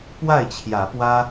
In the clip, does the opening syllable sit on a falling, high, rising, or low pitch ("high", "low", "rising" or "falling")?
falling